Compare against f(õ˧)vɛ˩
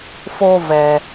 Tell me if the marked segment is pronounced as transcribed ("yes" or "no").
no